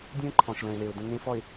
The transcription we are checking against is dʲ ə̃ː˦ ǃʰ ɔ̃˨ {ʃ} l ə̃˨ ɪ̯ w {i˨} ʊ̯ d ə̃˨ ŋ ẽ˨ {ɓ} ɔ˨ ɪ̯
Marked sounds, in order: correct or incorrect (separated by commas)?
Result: correct, incorrect, incorrect